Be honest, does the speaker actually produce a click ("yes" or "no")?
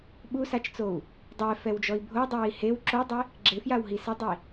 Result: yes